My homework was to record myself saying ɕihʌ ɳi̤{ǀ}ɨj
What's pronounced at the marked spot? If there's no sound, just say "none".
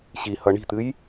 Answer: t̪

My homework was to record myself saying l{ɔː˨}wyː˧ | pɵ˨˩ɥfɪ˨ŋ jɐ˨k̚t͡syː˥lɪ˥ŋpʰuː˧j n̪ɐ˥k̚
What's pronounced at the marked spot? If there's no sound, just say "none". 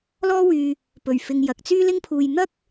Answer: ɔː˥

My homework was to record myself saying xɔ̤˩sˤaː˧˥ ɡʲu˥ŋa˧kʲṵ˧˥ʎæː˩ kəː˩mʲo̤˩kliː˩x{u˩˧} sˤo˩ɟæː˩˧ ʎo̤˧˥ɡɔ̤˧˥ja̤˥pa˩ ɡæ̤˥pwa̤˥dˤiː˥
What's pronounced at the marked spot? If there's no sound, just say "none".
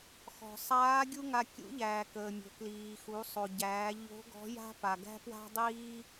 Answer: u˩˧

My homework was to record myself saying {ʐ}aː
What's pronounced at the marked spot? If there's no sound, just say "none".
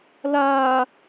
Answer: l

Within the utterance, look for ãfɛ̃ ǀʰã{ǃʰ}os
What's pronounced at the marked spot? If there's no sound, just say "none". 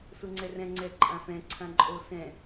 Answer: ǃʼ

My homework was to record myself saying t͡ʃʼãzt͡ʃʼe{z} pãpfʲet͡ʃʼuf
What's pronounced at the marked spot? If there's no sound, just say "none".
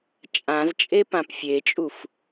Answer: none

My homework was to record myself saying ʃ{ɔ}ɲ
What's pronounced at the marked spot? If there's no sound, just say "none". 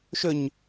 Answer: ɵ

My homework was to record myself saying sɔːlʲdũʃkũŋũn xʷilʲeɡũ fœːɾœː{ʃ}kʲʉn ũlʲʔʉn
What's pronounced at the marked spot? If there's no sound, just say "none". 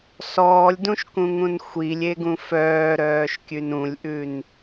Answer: ʃ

